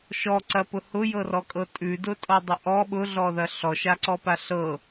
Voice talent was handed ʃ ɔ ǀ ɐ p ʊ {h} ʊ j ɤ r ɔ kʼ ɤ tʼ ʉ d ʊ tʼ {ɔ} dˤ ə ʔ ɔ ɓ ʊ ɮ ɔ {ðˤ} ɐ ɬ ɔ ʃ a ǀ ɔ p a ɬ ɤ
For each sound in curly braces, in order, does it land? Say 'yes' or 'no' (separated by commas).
yes, yes, no